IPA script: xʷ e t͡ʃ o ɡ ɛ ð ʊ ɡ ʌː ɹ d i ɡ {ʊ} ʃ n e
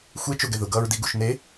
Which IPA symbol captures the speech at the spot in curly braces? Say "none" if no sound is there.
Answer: u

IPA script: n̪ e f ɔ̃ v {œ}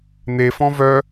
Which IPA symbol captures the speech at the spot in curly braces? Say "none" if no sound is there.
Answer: œ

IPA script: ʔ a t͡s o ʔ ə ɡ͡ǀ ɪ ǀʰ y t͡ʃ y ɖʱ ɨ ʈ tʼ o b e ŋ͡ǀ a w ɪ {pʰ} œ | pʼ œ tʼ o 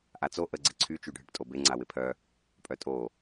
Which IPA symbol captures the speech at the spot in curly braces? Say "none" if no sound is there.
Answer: pʰ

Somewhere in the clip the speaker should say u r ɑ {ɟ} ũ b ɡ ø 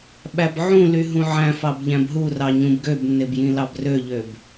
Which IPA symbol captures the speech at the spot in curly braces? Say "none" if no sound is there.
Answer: ɲ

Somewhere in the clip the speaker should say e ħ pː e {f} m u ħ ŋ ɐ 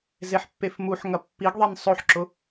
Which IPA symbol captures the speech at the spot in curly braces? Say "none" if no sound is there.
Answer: f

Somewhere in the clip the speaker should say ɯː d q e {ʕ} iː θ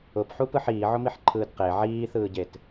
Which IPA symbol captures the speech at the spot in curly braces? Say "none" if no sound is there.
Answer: ʕ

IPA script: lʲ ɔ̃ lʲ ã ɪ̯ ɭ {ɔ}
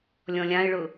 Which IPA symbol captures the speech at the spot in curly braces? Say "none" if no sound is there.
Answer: ʊ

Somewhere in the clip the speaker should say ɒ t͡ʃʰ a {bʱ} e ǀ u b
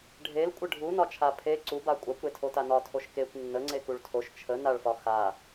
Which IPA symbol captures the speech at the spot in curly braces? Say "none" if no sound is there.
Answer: pʰ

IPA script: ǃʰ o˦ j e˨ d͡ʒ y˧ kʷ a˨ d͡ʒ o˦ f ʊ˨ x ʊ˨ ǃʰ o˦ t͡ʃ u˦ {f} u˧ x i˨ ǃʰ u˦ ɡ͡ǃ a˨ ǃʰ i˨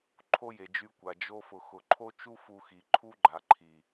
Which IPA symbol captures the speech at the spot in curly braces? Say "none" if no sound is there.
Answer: f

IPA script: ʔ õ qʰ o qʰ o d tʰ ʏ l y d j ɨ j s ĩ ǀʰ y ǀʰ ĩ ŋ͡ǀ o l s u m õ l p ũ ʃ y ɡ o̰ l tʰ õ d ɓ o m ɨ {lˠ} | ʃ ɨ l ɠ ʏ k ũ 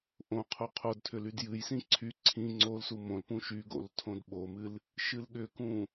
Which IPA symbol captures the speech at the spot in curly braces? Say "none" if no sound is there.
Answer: l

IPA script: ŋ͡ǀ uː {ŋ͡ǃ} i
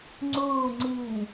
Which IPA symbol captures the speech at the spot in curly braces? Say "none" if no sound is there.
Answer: ŋ͡ǀ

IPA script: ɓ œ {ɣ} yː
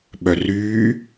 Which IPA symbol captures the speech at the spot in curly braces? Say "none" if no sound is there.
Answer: r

